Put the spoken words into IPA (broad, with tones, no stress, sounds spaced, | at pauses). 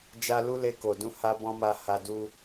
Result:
d͡ʒ a˦ l u˦ l e˧ k o˨ d ũ˧ h a˧ b ɔ̃˧ m a˨ h a˨ d u˧